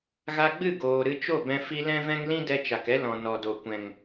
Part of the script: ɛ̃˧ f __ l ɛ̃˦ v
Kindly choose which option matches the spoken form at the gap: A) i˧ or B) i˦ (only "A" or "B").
A